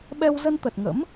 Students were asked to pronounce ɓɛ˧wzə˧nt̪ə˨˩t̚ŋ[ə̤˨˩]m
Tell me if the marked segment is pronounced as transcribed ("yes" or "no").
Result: no